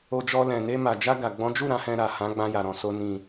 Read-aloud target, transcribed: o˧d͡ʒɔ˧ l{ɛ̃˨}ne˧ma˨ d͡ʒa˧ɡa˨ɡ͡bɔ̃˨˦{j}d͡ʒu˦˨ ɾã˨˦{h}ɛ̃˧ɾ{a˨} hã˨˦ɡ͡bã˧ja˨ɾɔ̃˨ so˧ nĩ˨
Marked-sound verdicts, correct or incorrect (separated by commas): correct, incorrect, correct, correct